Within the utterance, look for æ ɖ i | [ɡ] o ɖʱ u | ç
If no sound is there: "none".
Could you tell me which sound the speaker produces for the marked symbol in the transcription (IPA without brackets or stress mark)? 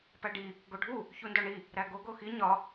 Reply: ɡ